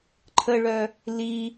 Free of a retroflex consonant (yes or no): no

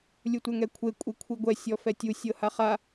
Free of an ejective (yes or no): no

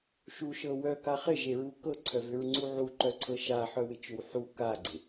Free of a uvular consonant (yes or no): no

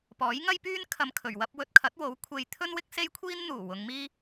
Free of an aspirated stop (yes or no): no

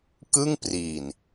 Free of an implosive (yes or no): yes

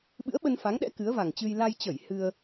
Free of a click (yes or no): yes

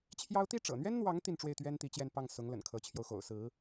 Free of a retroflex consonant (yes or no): no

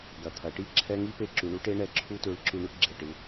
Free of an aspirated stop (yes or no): no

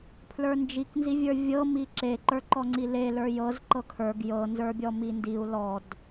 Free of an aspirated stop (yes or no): no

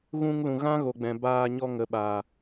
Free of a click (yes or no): yes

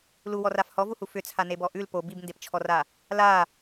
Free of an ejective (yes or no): yes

